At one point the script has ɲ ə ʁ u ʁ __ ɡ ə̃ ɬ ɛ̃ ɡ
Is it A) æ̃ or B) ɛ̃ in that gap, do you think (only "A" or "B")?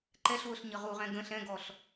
B